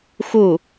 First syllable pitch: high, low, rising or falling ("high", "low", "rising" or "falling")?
falling